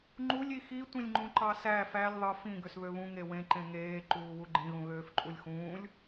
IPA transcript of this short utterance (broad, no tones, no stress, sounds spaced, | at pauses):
ŋ͡ǃ u lʲ i x i tʷ ĩ lʲ ŋ͡ǃ ũ ǃ ɑ s æ f æ lʲ ðˤ ɯ f ĩ ɡ ø s β ø β ũ ŋ e w ẽ ǃ ẽ ŋ eː ǃ uː w u ɡ͡ǃ ĩ ɣ ũ ɣ øː f ǃʼ u lʲ x ũː lʲ